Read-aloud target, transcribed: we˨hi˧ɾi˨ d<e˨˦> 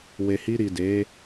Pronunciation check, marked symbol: correct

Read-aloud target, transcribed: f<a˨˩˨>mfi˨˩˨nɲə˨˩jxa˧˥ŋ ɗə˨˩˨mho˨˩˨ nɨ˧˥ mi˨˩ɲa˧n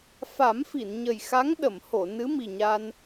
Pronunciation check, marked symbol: incorrect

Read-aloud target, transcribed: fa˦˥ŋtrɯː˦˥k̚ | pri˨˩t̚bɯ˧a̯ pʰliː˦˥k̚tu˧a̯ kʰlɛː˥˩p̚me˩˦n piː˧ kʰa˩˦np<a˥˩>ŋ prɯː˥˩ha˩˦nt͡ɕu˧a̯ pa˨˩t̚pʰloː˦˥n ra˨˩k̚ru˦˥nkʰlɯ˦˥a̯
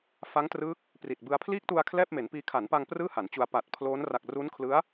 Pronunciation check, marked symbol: incorrect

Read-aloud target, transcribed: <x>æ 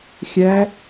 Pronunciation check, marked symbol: incorrect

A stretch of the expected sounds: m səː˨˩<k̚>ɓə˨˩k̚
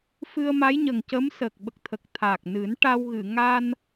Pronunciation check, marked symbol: correct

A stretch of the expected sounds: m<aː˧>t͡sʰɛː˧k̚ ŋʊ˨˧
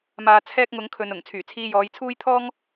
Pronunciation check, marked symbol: incorrect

